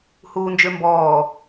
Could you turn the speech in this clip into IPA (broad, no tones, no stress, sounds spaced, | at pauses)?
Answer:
h uː n d͡ʒ ø m b ɔː